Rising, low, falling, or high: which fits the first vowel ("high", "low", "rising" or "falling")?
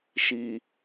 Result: low